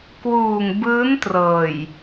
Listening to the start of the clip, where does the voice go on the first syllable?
low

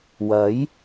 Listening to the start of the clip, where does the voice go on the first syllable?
rising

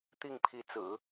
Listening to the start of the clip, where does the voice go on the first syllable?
falling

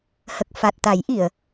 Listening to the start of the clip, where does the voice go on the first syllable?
low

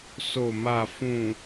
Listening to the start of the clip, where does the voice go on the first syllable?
low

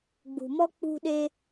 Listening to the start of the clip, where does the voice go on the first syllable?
low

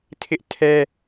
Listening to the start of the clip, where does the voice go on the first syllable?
high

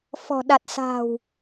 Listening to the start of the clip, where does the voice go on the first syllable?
low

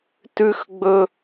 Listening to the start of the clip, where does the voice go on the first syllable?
high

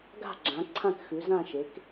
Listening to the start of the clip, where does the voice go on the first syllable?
falling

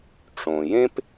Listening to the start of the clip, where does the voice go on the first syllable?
low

